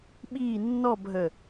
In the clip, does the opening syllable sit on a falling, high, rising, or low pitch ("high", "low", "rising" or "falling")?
falling